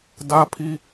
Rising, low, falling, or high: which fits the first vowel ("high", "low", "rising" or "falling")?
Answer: high